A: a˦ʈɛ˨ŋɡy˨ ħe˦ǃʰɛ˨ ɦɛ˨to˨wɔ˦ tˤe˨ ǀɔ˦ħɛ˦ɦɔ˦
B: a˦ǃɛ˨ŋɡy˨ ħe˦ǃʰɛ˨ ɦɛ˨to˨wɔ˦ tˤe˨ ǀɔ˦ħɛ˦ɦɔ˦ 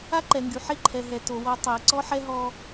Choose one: B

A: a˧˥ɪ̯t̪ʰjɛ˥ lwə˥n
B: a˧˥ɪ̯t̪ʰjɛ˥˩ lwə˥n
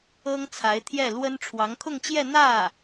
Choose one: B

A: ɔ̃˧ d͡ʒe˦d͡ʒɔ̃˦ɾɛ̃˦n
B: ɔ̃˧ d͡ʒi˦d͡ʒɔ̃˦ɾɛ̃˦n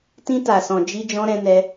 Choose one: B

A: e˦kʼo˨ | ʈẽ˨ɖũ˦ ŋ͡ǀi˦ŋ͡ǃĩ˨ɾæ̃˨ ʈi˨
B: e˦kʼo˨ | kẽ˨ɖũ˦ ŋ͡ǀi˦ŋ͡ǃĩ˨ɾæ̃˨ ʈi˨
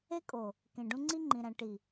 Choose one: B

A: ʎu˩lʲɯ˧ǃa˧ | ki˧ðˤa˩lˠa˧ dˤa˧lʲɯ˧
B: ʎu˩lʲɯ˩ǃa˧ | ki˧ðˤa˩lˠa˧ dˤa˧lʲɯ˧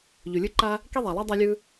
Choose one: A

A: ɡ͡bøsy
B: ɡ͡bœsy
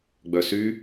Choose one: B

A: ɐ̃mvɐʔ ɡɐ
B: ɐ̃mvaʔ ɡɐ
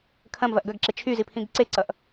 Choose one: A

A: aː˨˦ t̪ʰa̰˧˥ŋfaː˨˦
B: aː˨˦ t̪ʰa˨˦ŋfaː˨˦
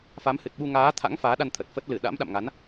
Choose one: A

